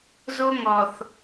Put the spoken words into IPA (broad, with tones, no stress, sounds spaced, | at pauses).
z o˦ ŋ ɔ˨ θ